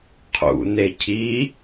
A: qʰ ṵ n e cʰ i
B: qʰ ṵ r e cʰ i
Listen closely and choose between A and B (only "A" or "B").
A